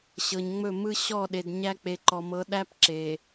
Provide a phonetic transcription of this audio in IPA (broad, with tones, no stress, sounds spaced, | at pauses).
ɕ ɤ˨ ɲ ŋ͡m ɵ˦˨ m ɯ˦ ɕ ɔ˦˨ ɗ e˨ d ɲ æ˦ k͡p e˨ ǃ ɔ˨ m ɤ˨˦ ɗ æ˦ p ǁ e˨